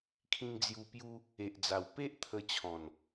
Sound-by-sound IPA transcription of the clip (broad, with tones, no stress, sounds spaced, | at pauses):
kʰ ĩ˧ ŋ d͡z j u˧ p j u˦ | e˨ ʔ d͡z a˨˩ w p e˦ ʔ t̪ʰ ə˧ t͡ɕʰ ɔ̃˨˩ n